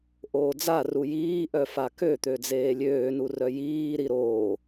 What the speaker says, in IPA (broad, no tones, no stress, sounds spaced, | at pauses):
ʔ oː d͡z a r u j iː ʔ œ f a k ø t̪ ø d͡z eː lʲ øː n u r œ j iː ɾ i ɾ oː